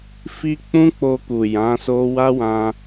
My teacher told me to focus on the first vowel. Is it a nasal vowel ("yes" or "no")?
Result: no